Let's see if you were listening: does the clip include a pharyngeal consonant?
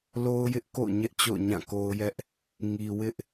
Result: no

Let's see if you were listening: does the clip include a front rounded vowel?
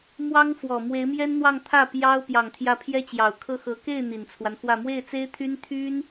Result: yes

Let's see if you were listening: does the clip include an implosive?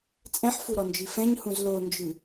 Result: no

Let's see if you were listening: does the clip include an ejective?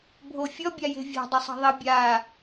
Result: no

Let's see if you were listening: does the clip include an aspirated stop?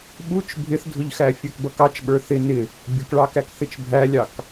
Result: no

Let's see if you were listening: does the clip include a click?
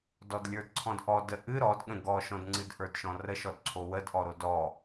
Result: yes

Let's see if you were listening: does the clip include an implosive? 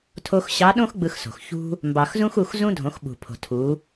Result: yes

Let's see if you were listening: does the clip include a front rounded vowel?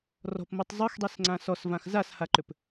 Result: yes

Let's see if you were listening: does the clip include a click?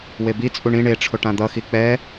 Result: no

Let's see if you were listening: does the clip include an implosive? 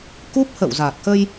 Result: no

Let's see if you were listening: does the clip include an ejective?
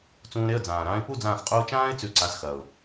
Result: yes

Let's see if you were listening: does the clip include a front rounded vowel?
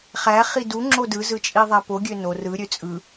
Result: yes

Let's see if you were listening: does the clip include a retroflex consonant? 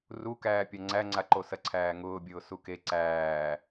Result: no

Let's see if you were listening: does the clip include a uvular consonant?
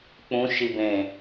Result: no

